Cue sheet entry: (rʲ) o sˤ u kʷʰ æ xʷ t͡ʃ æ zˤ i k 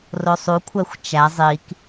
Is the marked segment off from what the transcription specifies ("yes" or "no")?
yes